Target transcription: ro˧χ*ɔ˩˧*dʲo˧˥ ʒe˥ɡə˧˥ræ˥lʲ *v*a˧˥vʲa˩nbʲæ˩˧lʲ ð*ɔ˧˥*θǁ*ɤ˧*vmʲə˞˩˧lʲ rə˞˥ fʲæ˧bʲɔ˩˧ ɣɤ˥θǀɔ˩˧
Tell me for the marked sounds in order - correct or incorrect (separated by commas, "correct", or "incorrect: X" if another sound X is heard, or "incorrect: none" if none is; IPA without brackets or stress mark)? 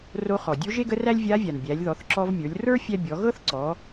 incorrect: ɔ˩, incorrect: vʲ, incorrect: ɔ˩˧, incorrect: ɔ˧